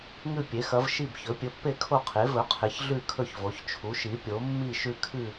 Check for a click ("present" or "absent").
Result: absent